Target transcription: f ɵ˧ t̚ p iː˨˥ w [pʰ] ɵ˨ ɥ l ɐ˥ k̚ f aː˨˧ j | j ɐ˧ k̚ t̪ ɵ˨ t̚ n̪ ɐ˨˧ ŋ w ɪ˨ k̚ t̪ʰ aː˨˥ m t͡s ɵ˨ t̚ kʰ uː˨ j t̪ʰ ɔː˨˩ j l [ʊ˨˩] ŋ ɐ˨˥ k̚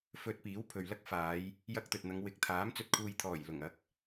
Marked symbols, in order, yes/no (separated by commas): yes, yes